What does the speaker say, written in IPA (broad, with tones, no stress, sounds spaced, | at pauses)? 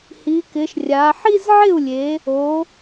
h i˩˧ k ɪ˩˧ ʃ rʲ a˩˧ ħ i˥˧ z ʕ ɪ˥˩ u̯ lʲ e˩˧ | o˩˧